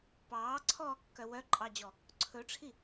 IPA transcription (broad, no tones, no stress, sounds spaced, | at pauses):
p ɑː ǀʰ ɔː kː œ w œ ǃʼ ɑ d͡ʑ ɔ | ǀʰ ɵ ʈ͡ʂʰ i